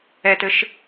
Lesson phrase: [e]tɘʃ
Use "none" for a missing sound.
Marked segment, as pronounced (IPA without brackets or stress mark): ɛ